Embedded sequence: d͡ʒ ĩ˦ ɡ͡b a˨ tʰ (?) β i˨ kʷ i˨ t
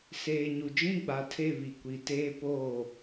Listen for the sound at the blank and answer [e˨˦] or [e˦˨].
e˦˨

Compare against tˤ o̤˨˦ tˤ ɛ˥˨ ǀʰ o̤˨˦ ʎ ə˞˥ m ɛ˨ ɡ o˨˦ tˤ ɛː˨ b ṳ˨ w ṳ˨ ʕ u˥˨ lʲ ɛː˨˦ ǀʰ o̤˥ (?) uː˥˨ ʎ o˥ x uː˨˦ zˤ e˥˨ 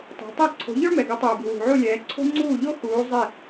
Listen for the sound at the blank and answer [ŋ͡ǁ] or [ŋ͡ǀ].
ŋ͡ǀ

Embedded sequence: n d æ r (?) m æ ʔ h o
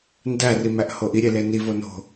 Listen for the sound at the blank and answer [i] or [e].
i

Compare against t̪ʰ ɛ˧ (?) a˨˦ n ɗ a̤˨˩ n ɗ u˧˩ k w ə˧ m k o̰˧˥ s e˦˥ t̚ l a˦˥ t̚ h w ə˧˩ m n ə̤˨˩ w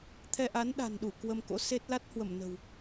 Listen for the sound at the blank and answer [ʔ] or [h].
ʔ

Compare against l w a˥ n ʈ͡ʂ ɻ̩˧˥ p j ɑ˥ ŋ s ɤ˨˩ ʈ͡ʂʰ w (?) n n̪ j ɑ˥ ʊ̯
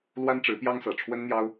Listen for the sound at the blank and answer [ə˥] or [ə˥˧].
ə˥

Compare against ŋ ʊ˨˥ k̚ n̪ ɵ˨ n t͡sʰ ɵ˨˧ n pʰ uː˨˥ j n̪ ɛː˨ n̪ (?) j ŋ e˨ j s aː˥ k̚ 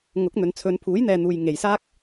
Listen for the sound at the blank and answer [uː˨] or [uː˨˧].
uː˨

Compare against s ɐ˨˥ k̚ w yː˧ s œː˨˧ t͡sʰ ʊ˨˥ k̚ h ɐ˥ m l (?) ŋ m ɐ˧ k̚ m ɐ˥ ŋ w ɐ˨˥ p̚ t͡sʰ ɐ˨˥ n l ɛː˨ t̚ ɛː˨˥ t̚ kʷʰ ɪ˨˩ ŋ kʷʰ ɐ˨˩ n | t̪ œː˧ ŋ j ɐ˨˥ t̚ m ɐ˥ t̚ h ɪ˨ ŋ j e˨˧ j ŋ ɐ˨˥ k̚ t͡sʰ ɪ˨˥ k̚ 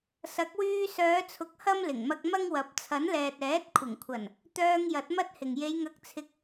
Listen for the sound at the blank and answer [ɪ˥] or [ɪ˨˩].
ɪ˨˩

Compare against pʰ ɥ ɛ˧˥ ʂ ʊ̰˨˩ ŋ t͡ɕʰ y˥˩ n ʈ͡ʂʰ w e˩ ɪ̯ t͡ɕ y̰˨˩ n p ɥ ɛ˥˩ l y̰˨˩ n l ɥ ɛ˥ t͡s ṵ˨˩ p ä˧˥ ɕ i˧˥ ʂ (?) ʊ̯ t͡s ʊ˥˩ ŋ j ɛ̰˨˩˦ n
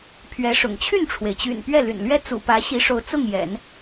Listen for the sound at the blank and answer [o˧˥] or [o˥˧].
o˧˥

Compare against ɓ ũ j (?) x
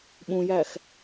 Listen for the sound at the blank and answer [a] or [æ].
æ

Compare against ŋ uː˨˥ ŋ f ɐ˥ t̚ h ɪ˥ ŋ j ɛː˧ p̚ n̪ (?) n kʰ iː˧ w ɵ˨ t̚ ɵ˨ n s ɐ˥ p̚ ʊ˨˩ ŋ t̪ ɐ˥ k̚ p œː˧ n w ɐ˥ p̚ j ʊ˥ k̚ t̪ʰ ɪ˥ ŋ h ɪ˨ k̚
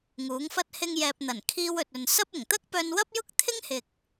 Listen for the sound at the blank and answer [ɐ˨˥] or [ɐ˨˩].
ɐ˨˩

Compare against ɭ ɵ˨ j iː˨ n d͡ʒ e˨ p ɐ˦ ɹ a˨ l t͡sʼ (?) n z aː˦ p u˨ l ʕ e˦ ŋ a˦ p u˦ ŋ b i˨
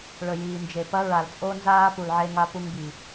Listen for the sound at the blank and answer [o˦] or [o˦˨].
o˦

